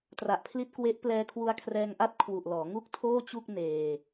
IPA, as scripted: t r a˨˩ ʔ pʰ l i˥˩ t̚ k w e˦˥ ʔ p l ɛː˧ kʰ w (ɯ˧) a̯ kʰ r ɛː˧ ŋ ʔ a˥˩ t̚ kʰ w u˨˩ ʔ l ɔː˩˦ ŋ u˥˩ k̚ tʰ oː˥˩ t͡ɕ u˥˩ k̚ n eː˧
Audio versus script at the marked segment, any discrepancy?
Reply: yes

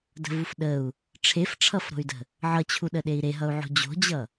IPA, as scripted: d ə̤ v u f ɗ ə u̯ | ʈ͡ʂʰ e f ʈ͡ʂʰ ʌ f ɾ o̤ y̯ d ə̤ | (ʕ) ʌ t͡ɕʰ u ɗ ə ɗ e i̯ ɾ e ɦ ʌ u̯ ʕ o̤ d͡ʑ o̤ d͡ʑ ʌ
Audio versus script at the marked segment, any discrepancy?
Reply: no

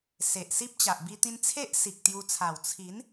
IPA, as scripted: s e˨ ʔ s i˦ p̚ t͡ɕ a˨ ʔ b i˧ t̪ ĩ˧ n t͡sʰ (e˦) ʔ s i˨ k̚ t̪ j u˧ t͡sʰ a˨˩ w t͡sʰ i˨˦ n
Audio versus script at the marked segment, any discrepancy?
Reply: no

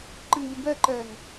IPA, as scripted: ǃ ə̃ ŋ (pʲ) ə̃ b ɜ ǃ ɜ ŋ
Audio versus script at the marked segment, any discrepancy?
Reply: yes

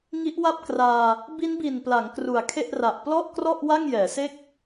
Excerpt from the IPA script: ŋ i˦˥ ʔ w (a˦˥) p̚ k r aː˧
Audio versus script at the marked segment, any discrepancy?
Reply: yes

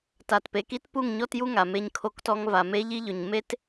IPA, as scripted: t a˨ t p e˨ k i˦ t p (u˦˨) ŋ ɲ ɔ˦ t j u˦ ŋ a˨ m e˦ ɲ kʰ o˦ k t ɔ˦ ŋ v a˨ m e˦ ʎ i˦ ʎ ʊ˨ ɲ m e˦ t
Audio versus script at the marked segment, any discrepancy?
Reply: no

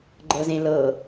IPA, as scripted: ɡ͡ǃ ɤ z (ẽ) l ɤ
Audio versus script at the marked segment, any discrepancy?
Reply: no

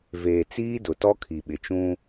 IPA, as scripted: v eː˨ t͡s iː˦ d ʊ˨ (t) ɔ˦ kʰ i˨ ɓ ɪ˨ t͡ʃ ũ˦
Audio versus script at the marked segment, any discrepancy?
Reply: no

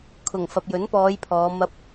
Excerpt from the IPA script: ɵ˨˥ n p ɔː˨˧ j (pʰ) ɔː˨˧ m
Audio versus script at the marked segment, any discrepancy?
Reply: no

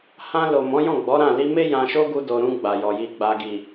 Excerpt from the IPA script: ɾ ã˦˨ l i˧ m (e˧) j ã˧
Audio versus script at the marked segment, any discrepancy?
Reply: yes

